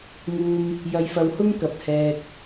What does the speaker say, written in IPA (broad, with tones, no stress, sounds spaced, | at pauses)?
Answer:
ŋ uː˨ m | j ɐ˨ j f ɐ˨ w h ʊ˥ ŋ k ɐ˨˥ p̚ h ɛː˧ k̚